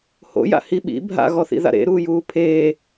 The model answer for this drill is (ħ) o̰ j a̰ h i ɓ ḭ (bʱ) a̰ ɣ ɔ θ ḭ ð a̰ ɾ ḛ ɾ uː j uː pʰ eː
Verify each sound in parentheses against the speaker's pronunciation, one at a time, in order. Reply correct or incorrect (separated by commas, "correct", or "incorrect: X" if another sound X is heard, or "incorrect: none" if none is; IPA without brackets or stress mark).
incorrect: h, correct